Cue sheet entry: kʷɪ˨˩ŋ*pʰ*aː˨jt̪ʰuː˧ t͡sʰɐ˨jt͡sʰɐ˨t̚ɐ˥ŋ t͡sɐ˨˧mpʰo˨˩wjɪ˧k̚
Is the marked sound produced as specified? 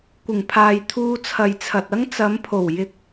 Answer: yes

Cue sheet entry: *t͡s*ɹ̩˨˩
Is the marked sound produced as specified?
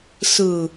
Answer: no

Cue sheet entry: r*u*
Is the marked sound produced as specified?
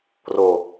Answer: no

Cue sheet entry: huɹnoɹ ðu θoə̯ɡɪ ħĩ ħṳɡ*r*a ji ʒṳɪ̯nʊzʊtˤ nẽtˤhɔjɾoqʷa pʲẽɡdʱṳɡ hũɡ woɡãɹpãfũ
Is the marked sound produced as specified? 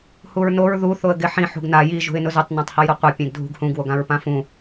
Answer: no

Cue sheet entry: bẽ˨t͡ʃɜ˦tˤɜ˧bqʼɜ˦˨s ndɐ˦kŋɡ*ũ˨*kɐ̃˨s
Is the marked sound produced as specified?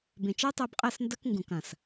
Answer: yes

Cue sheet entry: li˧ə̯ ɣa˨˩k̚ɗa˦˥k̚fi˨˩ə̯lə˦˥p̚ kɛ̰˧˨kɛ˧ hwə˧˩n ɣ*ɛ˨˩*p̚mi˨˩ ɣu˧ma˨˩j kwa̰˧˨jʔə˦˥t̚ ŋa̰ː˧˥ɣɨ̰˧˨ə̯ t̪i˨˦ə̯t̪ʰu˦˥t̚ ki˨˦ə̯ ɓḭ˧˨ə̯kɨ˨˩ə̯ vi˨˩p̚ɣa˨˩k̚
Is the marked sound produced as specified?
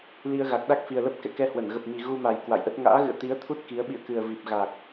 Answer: no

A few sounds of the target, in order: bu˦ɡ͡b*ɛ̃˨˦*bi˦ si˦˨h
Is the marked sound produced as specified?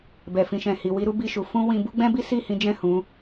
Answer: no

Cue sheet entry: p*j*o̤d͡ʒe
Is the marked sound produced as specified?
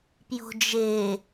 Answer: yes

